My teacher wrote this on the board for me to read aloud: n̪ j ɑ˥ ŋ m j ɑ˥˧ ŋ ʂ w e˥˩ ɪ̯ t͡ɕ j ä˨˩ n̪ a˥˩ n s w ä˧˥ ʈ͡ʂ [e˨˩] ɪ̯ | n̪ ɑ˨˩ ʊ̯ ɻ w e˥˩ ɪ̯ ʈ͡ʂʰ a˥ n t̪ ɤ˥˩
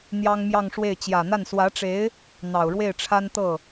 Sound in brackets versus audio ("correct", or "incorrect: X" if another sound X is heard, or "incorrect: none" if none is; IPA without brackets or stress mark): incorrect: e˧˥